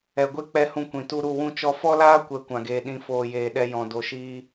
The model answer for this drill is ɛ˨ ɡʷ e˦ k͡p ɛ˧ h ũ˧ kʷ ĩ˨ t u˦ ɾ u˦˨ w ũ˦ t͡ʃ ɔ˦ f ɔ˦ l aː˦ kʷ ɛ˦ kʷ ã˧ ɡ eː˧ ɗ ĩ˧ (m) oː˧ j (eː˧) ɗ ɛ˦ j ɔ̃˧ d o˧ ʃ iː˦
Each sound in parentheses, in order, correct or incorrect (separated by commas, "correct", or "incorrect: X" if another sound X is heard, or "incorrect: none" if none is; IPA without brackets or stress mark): incorrect: f, correct